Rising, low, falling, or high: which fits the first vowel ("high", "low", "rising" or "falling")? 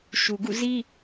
low